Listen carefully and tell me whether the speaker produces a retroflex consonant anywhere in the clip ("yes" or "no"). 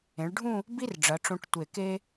yes